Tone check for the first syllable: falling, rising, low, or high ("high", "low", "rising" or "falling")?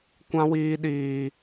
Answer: high